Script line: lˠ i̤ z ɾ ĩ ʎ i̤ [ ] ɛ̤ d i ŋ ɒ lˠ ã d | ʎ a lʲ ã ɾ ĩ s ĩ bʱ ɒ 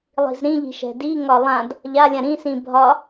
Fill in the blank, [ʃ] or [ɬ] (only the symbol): ʃ